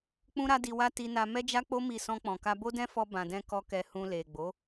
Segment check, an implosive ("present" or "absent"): absent